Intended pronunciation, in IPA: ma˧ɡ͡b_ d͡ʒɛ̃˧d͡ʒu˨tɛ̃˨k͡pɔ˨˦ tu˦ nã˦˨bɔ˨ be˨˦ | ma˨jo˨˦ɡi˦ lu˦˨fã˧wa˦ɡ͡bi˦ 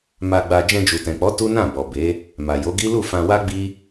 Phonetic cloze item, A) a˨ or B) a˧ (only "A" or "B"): B